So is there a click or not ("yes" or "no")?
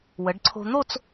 yes